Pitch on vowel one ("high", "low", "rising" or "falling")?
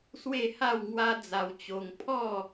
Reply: falling